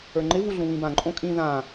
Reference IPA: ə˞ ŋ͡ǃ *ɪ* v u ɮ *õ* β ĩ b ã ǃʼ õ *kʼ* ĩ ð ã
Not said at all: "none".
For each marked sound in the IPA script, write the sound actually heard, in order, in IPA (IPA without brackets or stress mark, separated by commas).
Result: ɪ, ũ, kʼ